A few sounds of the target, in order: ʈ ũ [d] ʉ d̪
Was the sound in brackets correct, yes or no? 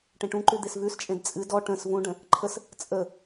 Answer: no